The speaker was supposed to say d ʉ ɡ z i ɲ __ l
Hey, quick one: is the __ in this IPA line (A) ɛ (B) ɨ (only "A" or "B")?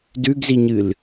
B